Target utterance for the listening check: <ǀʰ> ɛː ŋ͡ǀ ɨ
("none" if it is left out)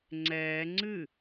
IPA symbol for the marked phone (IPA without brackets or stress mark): ŋ͡ǀ